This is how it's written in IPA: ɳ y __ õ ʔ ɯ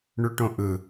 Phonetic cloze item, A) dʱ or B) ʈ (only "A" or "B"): B